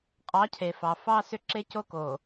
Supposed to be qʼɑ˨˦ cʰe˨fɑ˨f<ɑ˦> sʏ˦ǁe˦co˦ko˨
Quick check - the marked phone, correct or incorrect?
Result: correct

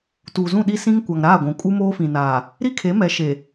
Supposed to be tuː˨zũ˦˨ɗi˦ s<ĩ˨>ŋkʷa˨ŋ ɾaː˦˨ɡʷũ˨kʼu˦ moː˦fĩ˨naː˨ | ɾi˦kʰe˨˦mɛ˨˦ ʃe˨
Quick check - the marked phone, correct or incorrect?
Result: incorrect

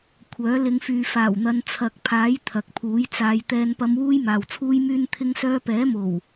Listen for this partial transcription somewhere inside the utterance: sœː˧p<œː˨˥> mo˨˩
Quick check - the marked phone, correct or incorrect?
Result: incorrect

